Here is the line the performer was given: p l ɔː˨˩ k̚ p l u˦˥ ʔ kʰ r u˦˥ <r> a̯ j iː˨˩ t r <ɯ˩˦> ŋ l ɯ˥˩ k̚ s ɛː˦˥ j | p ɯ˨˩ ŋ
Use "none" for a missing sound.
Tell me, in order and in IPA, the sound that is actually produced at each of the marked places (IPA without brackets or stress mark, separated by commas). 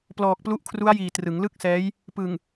none, ɯ˩˦